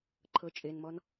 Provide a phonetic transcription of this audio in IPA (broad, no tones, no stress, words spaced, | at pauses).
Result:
ǃʰɤt͡ʃʼenmɔn